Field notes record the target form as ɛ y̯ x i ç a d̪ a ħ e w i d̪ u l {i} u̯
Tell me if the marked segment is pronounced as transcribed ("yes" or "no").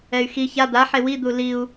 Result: yes